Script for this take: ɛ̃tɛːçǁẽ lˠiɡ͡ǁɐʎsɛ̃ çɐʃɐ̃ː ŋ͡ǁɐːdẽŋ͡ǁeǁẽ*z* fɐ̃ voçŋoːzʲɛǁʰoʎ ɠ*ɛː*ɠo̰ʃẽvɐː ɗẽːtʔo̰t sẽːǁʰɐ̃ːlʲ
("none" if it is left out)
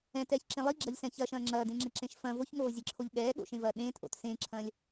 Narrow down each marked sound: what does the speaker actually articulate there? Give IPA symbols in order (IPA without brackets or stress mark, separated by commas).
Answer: ʃ, ɛː